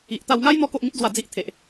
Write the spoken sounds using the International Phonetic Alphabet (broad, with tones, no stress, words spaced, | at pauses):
i˨ʔt̪a˧wŋa˦j n̪ɔ˦ko˦ʔŋĩ˦t̚d͡zwa˧ d͡zi˦ʔ t̪ʰe˨ʔ